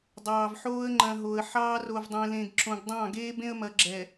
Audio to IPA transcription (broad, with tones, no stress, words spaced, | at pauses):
dˤɑː˨vħoː˦ə̯ ŋ͡ǃɐ̃˨ ɦo˨ə̯ ħɑː˦r o˨vdˤẽ˨lẽ˨ɡ ǁõ˨ɡdˤɑ̃˦˨ɡeː˦ bẽ˦ə̯mɐ˨ɡ͡ǁɛ˨